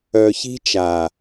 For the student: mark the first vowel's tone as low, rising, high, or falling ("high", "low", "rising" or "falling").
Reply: low